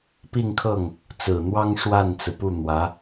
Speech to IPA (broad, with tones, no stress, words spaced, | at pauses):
pi˥˧ŋkʰɤ˥˩ŋ | t͡sɹ̩˨˩n̪wɑ˥ŋ ʂwa˥˩nt͡sɹ̩˩pu˥˩ n̪wä˧˥